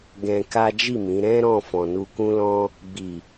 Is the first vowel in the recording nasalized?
yes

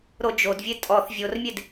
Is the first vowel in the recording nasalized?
no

